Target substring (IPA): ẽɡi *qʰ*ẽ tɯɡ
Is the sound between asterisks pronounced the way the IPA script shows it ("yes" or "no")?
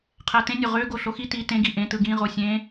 no